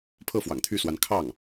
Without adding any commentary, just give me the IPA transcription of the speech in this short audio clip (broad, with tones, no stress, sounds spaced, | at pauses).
pʰ ɤ˥˩ f w ɑ̰˨˩ ŋ t̪ʰ y˥˩ s w a˧˥ n kʰ ɑ˥˩ ŋ